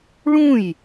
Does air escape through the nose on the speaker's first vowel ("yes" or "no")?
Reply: yes